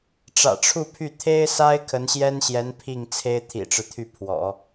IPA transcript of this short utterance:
ʈ͡ʂä̰˨˩ʈ͡ʂʰu˥˧pʰy˥˩ t̪ʰe˥ɪ̯sa˥ɪ̯ kʰə˧˥nɕjɛ˥nɕjɛ˧˥n pʰi˥˩ŋt͡sʰe˥ɪ̯ t̪ʰḭ˨˩ʈ͡ʂɻ̩˦t̪ʰy˥˩ pʰwɔ̰˨˩˦

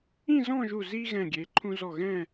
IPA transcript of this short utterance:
ĩ˥˧zɔ̃˥˧ʒu˧˩ zi˧ ɣɛ̃˧˩ ɡʲe˩˧ǃʰũ˧zɔ˧˩ ɣɛ̃˥˧

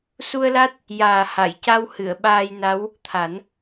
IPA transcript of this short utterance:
su˧ə̯la˦˥t̚ | jaː˨˩ ha˨˩˨j ca˧w hɨ˨˩˨ə̯ɓaː˧jna˧˥w | t̪ʰa˨˩˦n

